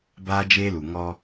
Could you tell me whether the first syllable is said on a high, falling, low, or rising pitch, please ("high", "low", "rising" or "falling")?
high